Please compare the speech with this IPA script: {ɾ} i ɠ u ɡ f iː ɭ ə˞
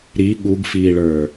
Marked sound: correct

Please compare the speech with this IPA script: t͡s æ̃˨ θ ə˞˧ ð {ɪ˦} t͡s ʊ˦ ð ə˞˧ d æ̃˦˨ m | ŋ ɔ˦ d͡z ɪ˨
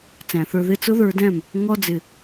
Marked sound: correct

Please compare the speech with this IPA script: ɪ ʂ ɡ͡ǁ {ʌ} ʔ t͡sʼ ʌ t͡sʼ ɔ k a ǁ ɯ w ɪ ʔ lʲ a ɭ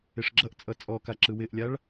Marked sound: correct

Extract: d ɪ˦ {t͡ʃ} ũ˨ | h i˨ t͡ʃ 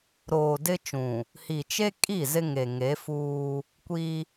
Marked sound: correct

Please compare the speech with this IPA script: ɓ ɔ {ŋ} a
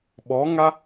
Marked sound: correct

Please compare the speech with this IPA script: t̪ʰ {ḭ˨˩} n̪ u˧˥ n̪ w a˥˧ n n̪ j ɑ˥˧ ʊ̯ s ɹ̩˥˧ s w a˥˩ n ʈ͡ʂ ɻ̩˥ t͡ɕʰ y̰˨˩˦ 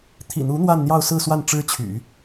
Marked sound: correct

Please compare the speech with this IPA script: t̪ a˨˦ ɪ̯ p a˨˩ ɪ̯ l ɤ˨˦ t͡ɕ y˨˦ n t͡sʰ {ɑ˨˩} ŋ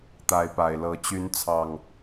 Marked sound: correct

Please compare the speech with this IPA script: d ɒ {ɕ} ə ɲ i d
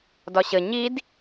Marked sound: correct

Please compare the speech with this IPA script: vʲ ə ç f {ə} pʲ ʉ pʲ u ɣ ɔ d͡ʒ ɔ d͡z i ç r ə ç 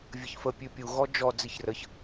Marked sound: correct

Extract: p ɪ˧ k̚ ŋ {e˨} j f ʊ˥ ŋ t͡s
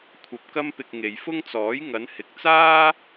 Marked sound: correct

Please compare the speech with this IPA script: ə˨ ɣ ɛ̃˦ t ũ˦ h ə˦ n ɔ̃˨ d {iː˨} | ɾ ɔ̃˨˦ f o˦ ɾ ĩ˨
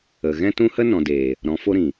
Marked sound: incorrect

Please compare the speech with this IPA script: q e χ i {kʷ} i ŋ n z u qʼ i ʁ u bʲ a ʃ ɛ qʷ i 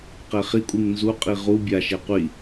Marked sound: incorrect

